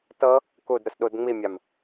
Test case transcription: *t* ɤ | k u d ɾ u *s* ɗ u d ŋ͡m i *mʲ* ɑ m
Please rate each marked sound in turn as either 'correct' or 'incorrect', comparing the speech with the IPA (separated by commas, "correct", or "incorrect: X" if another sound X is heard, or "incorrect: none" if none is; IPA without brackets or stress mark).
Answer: correct, correct, correct